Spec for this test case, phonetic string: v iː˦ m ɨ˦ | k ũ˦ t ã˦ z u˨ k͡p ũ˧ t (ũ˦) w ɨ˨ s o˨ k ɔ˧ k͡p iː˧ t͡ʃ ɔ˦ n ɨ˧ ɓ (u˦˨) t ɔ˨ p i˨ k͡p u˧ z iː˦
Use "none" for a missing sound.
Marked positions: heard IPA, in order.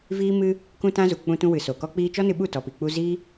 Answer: ũ˧, u˦˨

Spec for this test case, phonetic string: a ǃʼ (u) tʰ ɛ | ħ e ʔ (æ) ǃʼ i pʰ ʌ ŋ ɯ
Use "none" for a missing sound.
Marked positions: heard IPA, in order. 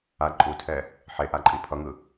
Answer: u, a

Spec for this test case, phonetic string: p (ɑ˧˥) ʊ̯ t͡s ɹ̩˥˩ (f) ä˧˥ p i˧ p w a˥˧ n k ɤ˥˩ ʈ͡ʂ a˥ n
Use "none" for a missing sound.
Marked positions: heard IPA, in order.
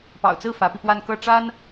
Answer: ɑ̰˨˩, f

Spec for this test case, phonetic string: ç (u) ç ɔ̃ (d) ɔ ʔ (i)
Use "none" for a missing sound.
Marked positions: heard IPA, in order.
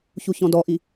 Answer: u, d, i

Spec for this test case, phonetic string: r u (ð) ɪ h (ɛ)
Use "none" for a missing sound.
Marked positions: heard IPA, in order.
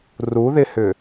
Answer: ð, ʏ

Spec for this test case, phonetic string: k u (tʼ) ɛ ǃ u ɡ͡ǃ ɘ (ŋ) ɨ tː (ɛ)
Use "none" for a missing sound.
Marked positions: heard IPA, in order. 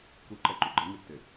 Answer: ǃ, ŋ, ɘ

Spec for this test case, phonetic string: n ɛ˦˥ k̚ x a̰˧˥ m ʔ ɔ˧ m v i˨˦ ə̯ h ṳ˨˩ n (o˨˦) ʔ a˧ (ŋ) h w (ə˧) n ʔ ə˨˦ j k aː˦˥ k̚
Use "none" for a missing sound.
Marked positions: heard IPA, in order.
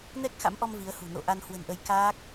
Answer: o̰˧˨, n, ə̤˨˩

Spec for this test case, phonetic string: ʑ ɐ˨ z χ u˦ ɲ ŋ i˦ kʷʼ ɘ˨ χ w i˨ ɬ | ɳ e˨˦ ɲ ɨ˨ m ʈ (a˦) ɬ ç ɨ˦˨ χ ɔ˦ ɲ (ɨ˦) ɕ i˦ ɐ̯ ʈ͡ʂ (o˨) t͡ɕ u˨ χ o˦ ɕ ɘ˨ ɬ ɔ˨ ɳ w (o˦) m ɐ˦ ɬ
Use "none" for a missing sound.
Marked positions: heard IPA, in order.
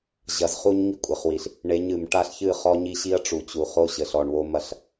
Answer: a˦, i˦, u˨, o˦

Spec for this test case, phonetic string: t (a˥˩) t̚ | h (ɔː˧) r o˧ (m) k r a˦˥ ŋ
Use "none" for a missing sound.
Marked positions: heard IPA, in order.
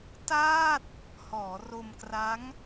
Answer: aː˥˩, ɔː˩˦, m

